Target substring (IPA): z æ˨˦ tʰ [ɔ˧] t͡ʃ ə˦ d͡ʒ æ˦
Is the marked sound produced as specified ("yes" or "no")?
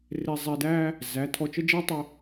yes